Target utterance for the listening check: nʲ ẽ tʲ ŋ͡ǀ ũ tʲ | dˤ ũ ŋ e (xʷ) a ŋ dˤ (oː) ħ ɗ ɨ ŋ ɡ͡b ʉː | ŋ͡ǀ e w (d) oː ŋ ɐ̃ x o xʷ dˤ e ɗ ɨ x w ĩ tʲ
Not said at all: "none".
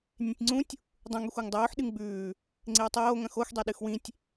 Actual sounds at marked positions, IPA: xʷ, oː, tˤ

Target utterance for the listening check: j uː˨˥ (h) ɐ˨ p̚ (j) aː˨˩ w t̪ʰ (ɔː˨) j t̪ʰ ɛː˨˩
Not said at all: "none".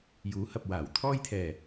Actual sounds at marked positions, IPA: h, w, ɔː˧

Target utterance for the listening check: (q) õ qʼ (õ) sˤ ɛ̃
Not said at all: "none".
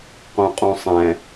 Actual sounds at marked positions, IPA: q, õ

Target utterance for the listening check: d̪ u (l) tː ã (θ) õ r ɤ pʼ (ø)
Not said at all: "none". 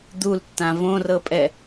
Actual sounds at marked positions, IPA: l, v, ɛ

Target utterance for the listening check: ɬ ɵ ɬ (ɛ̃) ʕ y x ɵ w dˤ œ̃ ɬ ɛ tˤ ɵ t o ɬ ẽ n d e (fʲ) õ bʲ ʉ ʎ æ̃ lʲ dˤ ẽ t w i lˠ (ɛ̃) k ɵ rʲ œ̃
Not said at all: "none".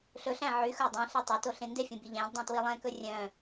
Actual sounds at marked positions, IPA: æ̃, fʲ, ɛ̃

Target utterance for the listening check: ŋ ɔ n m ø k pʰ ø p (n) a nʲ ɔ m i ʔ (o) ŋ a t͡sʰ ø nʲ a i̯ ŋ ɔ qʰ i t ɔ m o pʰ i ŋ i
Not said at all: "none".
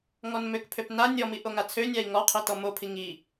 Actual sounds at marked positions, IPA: n, o

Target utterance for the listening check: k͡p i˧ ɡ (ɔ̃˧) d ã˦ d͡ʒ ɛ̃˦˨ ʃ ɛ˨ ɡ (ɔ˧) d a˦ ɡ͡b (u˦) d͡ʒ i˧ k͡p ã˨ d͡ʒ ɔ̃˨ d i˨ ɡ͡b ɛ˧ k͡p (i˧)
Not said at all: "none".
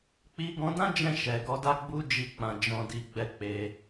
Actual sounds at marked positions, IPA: ɔ̃˧, ɔ˧, u˦, e˧

